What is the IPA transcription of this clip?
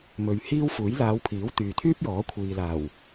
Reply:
m ɵ˨ ɥ h iː˥ w f uː˨˥ j l aː˨˧ w pʰ iː˨˥ w t̪ yː˨ t̪ʰ yː˥ p̚ j ɔː˨˥ kʷʰ iː˨ l aː˨˩ w

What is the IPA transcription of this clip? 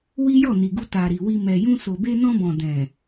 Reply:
w i˦ j ɔ˦˨ n i˨ ɡ u˧ t a˨ ɾ i˨ w i˧ m ɛ˨ j ũ˧ s o˨ b e˧ n ɔ̃˧ b ɔ̃˨ d ɛ̃˨

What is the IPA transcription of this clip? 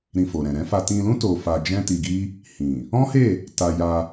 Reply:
ɾ ĩ˧ f o˨ ɾ ɛ̃˨ ɾ ɛ̃˨˦ f a˧ t ĩ˧ l ũ˦ t o˧ f a˧ d͡ʒ ɛ̃˦ t i˧ ɡ i˦ | h ĩ˨ | ɔ̃˦ h e˦˨ | t a˧ j a˧

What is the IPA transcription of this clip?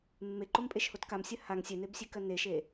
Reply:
mː e ǃ o m pʼ e ʃ h o t k a m sʲ ɜ h a ŋ sʲ e n e b sʲ e k ɜ n e ʃ e

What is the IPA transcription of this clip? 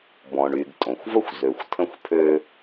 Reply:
b ɔ̃˩ ɳ y˩ ɡ tʼ õ˩ xʷ v ə˥ xʷ z ø˩ xʷ tʰ ə̃˧ xʷ pʰ ø˧

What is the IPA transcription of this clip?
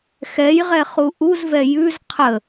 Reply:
x ɛ j ʁ ɛ χ u ʔ u z v ɛ j ʉ z qʰ ə

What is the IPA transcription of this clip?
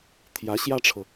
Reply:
t̪ʰ j ä˧˥ ɕ j ä˥ ʈ͡ʂʰ ɤ˨

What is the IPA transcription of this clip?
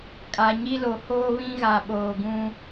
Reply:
kʼ a˨ ɲ i˦ l o˨ h oː˦ β ĩ˦ ɣ a˨ ɓ oː˨ ɡ ũ˦

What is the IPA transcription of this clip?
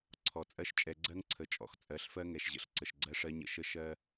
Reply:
ǀʰ ɔ˨ t͡sʼ ɜ˦ ʃ t͡ʃʼ ɛ˨ ɡ͡ǀ ɜ˦ ŋ ǀʰ ə˨ t͡ʃʼ ɔ̰˨ x t͡sʼ ɜ˨˦ ɬ f ɜ˦ ŋ ɛ˨ ʃ ʑ ə̰˨ ɬ ǀ ə˨ ʃ ɡ͡ǀ ɜ˦ ʂ ɜ˦ ɲ ə̰˦ ʃ ə˦ ʃ ɜ˦

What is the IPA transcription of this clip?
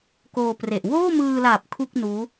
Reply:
k oː˧ p r e˨˩ ʔ w oː˥˩ m ɯː˧ l a˨˩ p̚ kʰ u˥˩ k̚ n uː˦˥

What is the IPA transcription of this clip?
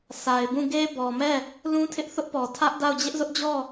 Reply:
sʰ a˨ ɪ̯ b ũ˦˨ ɡ e˦ b ɔ˨ m ɛ˦˨ | l ũ˦ tʰ ɪ˦ ʔ θ ʊ˦ ʔ p ɔ˨ tʰ ä˦ ʔ d a˦˨ ʊ̯ d͡ʑ ɪ˦ ʔ z ʊ˦ ʔ d͡ʑ ɔ˦˨

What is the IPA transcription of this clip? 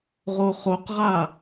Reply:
ʁ o χ o q ʁ a

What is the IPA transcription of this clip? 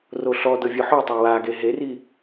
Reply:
r o ɬ ɔ d ɤ vʲ o ħ o tˤ a w a ɡ e ɦ e r i

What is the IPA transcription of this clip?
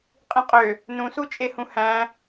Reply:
qʼ ĩ qʼ ø | n ũ s u t͡ʃʼ e h ũ h æ̃

